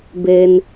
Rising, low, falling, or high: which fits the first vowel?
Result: low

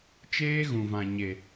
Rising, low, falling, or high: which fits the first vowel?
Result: high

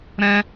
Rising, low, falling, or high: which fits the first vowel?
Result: high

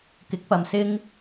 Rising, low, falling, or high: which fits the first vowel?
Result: rising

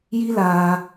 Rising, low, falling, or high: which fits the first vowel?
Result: high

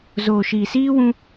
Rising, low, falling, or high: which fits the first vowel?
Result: low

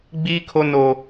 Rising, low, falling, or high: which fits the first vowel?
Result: high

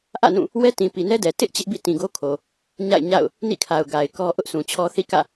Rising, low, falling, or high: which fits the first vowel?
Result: falling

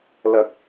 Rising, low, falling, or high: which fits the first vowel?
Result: high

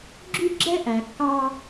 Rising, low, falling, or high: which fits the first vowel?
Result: high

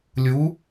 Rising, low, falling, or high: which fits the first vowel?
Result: rising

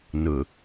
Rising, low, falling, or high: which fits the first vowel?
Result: low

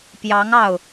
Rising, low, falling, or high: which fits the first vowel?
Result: rising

